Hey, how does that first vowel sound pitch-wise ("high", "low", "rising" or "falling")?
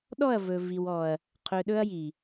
falling